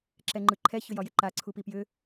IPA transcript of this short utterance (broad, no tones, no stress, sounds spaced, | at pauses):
ǁ ɛ ŋ͡ǃ ɯ ǃʰ ɛ ç ʏ j ɒ j ɪ ǃ a ǀʰ u p i p j ʏ